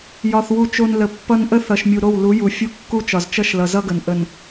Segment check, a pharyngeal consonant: absent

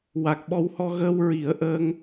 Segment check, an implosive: present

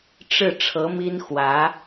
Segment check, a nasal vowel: absent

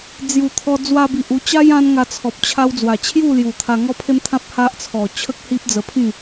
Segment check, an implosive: absent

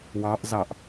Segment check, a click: absent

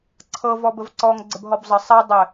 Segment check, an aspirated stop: present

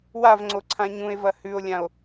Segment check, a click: present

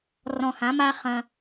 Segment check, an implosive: absent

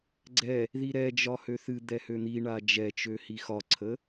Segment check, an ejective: absent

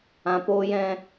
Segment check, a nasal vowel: present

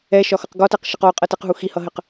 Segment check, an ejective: present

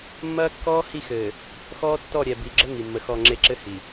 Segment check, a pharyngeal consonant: absent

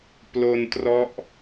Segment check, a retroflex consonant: absent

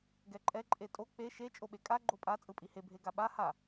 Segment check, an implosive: present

